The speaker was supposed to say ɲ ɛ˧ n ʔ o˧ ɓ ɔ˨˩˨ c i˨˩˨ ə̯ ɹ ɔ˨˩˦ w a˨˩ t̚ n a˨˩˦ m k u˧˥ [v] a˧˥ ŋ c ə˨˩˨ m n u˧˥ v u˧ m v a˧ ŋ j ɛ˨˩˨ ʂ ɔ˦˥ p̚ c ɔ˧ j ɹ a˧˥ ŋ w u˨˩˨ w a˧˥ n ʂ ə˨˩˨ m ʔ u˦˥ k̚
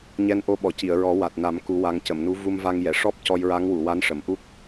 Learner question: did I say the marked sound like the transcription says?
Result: no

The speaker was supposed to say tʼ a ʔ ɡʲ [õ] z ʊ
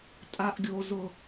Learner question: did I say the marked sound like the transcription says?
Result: no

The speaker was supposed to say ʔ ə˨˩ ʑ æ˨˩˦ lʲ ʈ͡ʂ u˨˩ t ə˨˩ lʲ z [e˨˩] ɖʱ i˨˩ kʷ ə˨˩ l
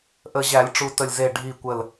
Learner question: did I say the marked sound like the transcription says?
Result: yes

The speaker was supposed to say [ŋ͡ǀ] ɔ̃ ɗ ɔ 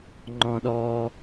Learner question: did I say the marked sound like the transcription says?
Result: no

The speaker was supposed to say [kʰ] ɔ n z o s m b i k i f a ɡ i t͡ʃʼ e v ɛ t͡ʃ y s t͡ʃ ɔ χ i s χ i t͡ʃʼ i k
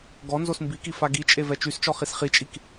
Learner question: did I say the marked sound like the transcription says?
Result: no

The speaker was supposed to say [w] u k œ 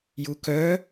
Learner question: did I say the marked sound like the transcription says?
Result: no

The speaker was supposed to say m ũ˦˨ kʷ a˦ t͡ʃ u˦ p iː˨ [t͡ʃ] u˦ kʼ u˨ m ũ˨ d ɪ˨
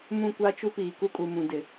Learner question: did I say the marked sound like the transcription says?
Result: no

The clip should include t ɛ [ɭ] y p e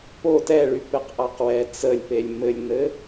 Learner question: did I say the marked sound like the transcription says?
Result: yes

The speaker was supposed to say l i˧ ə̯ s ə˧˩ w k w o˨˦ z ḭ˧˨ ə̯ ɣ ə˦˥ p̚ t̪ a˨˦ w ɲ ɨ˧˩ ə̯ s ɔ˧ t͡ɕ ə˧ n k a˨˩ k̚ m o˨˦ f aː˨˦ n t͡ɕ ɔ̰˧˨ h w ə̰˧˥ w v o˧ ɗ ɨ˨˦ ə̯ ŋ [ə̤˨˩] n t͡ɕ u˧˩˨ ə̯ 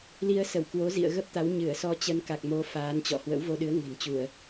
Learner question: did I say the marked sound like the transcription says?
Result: yes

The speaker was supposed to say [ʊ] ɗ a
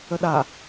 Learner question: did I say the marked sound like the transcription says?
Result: no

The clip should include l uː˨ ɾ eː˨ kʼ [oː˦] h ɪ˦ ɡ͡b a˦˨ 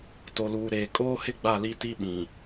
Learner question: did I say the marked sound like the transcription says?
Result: yes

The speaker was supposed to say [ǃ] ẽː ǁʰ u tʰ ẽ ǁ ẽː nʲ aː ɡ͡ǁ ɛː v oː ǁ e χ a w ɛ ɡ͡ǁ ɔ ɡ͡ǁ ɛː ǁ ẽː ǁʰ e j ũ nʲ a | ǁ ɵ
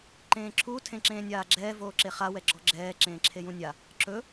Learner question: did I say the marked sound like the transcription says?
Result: yes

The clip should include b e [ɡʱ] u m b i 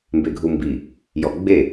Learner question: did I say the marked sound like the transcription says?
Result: yes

